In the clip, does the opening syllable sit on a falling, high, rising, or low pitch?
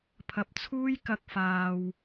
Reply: low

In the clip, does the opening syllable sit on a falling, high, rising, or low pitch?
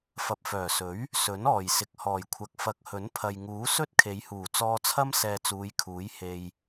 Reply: low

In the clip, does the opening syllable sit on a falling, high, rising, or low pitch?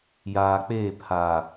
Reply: low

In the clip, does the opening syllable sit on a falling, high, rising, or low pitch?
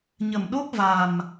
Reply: low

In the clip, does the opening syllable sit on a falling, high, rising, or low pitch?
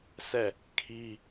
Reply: falling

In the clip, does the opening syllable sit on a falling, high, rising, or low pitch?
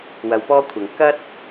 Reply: low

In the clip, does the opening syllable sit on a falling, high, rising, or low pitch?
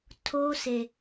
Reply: high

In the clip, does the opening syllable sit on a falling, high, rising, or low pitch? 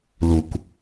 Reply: low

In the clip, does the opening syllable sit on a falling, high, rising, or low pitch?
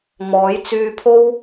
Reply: rising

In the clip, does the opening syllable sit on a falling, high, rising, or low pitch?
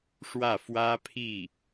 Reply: falling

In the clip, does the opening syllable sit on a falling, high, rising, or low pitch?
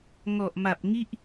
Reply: low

